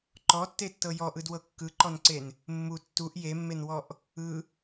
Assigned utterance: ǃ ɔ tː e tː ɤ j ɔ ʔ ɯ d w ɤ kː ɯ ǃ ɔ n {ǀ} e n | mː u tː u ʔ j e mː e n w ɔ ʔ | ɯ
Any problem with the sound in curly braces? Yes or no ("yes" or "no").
no